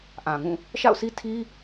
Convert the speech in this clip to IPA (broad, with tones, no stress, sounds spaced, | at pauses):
ʔ ã˨ ŋ ũ˦˨ | ʃ a̰˦˨ ʊ̯ s i˦ tʰ i˦